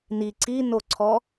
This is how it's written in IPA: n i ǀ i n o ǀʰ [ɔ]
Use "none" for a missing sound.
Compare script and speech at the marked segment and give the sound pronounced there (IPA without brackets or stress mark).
ɔ